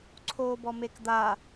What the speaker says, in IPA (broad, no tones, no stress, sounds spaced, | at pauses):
ǀʰ oː b ɔ m e k d̪ a